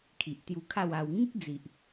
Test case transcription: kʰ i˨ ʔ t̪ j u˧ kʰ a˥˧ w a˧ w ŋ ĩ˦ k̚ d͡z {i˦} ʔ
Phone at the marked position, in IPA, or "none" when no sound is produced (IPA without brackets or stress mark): i˨